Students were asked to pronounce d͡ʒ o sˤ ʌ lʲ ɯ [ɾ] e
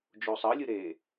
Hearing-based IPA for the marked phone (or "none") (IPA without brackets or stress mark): ɾ